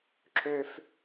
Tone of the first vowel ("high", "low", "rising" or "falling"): high